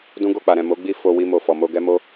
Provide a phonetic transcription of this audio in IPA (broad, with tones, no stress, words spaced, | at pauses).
dũ˦ɡo˦˨k͡pa˨ɾɛ̃˨ mo˨˦ɡ͡bi˦˨ fo˧ wi˧ mo˨fɔ˨mo˧ ɡɛ˦mo˦